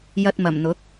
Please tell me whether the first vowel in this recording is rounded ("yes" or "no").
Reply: no